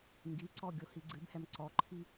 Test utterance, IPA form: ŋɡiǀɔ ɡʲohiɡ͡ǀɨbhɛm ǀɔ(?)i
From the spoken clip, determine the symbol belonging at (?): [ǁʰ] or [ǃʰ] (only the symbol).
ǃʰ